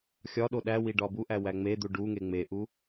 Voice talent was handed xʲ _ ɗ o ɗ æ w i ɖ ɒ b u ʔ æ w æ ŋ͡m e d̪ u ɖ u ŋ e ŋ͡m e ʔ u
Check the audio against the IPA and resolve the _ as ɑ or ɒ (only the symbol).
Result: ɒ